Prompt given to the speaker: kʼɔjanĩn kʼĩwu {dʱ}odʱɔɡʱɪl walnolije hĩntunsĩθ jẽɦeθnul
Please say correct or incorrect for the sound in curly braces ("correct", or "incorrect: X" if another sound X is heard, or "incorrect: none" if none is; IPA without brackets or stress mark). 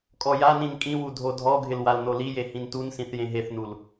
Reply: correct